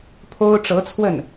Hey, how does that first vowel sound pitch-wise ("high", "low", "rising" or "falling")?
high